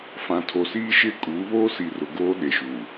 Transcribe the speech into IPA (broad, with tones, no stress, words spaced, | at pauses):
fã˨tʰo˨siː˦ ʃɪ˦kʼu˨˦βo˦ si˨ rʊ˨ɡoː˦ɗe˨ʃuː˨